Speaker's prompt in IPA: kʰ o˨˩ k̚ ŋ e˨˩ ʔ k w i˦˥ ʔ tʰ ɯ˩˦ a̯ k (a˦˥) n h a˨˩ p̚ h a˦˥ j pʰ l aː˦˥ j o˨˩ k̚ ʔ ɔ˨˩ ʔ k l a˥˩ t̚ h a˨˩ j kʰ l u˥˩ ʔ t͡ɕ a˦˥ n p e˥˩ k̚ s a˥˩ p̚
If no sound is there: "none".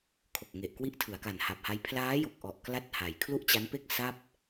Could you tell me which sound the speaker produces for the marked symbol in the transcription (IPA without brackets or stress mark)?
a˨˩